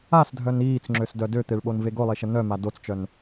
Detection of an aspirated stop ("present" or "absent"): absent